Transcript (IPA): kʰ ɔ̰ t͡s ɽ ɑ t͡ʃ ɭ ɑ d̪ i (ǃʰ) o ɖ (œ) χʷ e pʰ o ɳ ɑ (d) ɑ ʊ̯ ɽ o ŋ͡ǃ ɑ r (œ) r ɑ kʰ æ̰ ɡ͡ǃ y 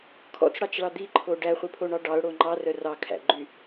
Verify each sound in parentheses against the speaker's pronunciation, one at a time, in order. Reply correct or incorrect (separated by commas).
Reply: correct, incorrect, incorrect, correct